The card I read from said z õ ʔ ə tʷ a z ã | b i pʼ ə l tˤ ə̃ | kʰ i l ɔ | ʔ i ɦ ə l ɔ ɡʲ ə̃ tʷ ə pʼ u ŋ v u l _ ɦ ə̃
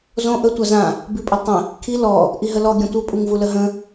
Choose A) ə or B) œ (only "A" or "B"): A